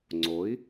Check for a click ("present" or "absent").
present